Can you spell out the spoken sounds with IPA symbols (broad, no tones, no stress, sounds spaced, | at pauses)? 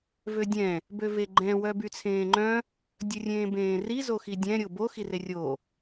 v ø dʲ ɛ̃ | b ø v e ɡ͡ǃ ɛ̃ w œ b y t͡sʰ ẽː ŋ͡ǃ œ̃ | dʲ ɵ rʲ ẽː b ẽː r i z o x i dʲ ɛ̃ ɾʲ o b o x i r e rʲ o